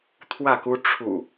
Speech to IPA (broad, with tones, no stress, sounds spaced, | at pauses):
t̪ʰ w ä˥˨ k u˦ ʈ͡ʂʰ ṵ˨˩